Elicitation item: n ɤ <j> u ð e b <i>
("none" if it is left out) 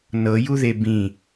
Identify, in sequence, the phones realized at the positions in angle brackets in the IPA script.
j, ĩ

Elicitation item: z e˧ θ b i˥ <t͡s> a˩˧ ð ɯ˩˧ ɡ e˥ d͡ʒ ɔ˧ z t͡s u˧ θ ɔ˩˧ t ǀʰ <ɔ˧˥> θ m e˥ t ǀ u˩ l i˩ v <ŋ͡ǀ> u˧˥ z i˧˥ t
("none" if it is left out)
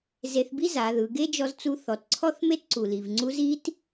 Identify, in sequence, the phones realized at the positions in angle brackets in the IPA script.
z, ɔ˥, ŋ͡ǀ

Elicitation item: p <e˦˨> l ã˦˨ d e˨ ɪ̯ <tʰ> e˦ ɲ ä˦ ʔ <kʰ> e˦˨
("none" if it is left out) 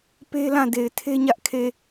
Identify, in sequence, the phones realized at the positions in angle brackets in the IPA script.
e˦, tʰ, kʰ

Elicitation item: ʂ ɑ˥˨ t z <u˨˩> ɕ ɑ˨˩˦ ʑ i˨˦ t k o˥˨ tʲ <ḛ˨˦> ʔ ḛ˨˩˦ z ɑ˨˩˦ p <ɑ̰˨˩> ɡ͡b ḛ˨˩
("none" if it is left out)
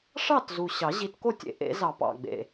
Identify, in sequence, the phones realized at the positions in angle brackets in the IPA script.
u˨˩, ḛ˨˦, ɑ̰˨˩

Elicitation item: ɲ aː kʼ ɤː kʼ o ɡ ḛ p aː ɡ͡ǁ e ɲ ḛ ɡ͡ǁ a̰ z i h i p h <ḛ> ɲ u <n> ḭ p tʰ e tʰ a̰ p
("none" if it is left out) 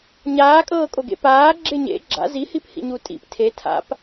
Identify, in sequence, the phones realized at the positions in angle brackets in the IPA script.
ḭ, tʼ

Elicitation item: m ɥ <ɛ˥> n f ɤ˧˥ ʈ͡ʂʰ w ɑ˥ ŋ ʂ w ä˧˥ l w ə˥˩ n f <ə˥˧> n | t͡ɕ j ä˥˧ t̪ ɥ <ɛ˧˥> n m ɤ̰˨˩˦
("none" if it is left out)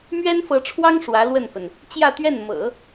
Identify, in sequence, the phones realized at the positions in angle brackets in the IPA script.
ɛ˥, ə˩, ɛ˥˩

